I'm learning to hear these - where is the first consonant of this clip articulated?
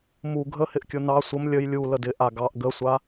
lips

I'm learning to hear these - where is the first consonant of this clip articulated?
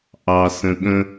throat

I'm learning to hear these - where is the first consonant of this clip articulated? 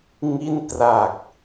velum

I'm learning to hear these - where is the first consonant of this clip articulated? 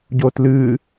palate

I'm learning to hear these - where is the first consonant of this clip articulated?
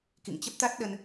velum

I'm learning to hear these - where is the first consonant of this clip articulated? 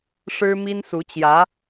retroflex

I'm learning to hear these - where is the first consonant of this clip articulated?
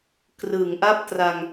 velum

